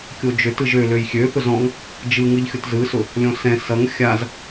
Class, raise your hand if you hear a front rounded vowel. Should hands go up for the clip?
yes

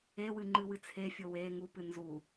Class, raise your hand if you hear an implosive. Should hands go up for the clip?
no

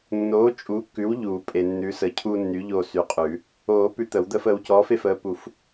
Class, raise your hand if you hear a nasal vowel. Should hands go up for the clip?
no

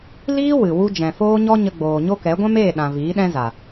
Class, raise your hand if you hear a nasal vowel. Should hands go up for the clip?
yes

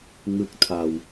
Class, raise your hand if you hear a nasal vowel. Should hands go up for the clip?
no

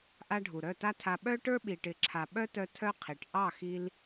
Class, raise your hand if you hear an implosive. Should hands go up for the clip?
yes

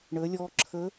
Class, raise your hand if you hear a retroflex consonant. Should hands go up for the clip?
yes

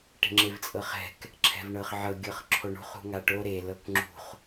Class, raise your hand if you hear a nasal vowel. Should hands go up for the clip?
no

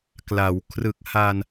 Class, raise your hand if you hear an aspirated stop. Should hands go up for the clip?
yes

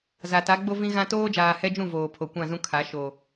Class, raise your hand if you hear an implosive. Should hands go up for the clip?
no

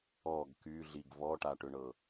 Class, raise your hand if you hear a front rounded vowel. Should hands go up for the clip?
yes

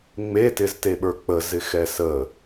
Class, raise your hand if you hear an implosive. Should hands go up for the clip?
yes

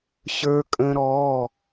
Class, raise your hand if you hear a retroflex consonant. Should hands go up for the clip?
no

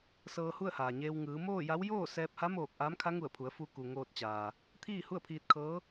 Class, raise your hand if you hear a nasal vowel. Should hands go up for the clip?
no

